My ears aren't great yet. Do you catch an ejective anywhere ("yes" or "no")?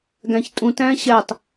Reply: yes